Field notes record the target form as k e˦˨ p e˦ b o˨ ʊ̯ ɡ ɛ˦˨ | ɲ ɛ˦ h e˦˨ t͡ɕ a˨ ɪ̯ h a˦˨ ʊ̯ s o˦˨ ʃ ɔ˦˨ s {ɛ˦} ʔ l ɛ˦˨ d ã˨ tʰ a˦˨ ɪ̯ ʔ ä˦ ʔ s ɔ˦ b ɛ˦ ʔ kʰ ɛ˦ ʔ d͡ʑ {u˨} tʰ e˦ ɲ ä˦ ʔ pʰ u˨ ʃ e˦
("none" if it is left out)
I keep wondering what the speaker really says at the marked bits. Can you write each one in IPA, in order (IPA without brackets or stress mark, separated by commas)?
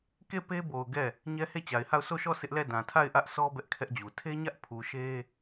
ɪ˦, u˨